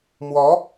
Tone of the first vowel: rising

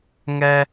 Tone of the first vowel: high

